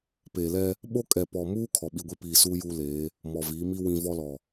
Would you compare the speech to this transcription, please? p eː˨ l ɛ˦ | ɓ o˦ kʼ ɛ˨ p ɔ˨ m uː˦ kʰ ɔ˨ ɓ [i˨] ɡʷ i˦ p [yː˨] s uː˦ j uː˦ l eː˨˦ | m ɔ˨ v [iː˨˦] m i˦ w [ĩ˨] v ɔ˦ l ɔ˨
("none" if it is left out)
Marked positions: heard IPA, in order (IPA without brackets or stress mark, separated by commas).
i˦, iː˨, iː˨˦, ĩ˨